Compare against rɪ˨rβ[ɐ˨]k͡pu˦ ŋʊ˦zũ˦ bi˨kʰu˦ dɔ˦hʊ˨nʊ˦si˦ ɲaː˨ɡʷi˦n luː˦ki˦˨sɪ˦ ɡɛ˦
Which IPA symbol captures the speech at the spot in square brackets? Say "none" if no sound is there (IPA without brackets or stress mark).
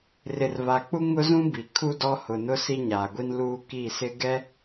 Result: a˨